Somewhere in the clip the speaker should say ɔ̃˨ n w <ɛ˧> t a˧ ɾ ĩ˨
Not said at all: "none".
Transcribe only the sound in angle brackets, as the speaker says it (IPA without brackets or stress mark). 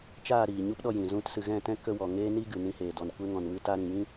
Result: ɨ˧